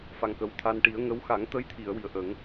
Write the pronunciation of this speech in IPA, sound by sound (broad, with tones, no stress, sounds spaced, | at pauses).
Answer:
f a˨˩ ŋ k ə˨˩ w t̪ʰ a˧ n ʈ i˨˩˦ ə̯ ŋ ə˧˥ w x a˨˩˦ ŋ t̪ ə˧˥ j t̪ʰ i˨˩˨ ə̯ w i˨˩ ə̯ ʔ ə˨˩˦ ŋ